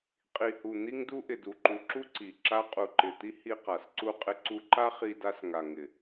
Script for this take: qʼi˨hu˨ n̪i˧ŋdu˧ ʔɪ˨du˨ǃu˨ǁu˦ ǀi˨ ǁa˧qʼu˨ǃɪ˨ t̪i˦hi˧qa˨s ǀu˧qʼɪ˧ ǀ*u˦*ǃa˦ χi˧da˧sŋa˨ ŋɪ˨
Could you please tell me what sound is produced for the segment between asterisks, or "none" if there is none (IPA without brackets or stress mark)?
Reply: u˧